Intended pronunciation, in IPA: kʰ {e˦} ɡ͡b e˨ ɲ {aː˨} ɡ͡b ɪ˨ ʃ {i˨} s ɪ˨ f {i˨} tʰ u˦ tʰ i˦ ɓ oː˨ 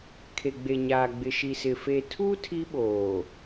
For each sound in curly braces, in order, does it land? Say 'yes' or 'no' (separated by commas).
no, yes, yes, no